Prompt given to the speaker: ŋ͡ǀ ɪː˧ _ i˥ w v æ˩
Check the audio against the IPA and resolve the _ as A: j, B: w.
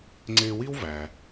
B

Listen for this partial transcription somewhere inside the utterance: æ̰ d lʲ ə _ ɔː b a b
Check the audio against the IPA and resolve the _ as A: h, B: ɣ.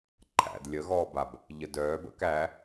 B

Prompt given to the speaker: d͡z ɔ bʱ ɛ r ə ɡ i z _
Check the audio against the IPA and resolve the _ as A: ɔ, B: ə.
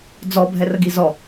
A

